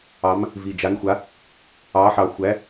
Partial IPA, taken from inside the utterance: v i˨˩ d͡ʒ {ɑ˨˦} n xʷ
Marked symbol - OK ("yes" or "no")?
no